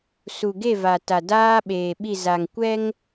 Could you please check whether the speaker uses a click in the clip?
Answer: no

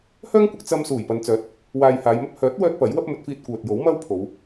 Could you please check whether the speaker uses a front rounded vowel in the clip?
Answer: yes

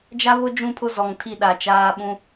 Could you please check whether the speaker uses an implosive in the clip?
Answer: yes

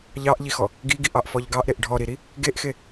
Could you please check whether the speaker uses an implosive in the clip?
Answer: no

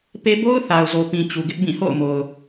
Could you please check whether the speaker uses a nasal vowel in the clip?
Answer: yes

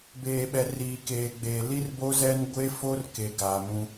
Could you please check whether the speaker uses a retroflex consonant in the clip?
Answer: no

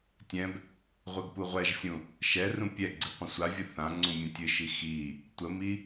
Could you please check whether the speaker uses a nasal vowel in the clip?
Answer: yes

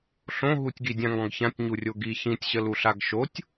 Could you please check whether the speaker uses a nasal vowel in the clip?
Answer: yes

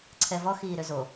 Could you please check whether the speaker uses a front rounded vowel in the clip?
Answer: yes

